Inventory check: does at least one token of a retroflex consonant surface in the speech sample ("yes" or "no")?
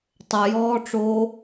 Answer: yes